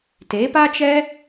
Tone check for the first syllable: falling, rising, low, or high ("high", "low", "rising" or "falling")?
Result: rising